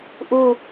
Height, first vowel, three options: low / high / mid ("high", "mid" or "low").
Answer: high